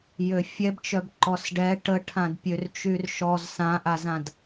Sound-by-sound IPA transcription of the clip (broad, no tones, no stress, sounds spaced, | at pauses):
j ø fʲ ɛ b t͡ʃ œ b ǃ ɔ s ɖ ɛ ʈ ə ʈʰ ã d pʲ ø r t͡ʃ y r ʃ ɔ z s ã ʔ a z ã d